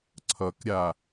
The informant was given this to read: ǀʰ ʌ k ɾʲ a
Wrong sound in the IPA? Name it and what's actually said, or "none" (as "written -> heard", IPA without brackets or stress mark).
none